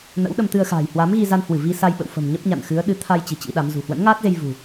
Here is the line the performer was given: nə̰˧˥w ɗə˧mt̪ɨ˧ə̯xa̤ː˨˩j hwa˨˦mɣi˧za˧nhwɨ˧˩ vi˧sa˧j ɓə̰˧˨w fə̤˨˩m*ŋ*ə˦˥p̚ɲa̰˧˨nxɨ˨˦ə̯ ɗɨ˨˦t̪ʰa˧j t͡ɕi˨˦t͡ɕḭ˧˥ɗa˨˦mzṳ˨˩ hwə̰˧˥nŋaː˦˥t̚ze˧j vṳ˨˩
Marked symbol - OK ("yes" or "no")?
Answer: no